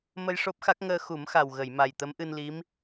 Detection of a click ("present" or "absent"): absent